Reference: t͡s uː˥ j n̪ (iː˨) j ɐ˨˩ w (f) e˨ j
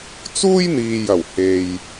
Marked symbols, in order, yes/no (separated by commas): yes, no